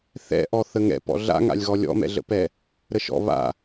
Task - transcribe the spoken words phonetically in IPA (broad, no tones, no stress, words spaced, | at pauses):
θɛ̰ʔɔ θəŋɛ̰ pɔ̰ɮa̰ŋa̰lʲɣɔ lʲɔ̰mɛ̰ɮə̰pɛ | ɾəʃɔ̰ βa̰